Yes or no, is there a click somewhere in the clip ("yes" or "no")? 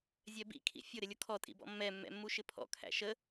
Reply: no